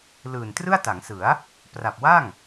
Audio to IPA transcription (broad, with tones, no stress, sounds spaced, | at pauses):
l ɯː˨˩ n t r ɯ˥˩ a̯ t a˩˦ ŋ s ɯ˩˦ a̯ | p r a˨˩ p̚ w a˥˩ ŋ